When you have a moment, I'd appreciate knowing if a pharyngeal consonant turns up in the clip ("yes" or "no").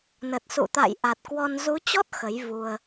no